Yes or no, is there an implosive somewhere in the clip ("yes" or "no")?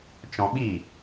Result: yes